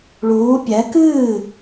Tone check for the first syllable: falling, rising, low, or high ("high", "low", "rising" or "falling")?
rising